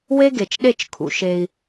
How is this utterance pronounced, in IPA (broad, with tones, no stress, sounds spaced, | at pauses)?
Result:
w e˦ ɡ e˨ t͡ʃ ɗ e˦˨ t͡ʃ kʰ ṵ˨ ʃ e˧ i̯